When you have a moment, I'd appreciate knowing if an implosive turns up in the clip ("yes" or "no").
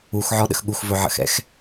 yes